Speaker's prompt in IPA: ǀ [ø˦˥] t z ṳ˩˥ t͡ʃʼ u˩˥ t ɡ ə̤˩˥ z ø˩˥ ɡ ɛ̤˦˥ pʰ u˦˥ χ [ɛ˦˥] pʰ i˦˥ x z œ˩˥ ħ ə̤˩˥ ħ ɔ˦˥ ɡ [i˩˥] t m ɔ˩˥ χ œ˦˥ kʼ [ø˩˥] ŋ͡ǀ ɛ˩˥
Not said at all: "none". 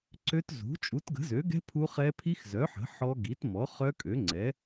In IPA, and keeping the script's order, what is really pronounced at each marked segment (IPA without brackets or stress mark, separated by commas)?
ø˦˥, ɛ˦˥, i˩˥, ø˩˥